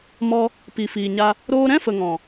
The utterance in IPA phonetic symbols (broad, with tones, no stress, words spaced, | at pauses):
mɔ˧ | pi˨fiː˨ɲa˧ | ɾoː˧ɾɛ̃˦fə˨ ŋɔ̃˨